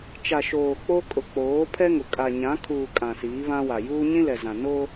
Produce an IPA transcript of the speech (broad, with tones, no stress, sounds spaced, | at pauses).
t͡ʃ a˨ ʃ oː˨ k͡p o˦ kʼ ʊ˨ k͡p oː˨˦ pʰ ɛ˦ ŋ ʊ˨ kʼ a˨ ɲ ã˨˦ kʰ uː˨ kʼ ã˨ s iː˨˦ β ã˦ w a˨ j uː˦ ɲ ĩ˦ l ɛ˨ z ã˨ n o˦